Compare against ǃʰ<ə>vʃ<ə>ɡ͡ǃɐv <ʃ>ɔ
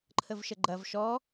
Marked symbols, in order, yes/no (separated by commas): yes, yes, yes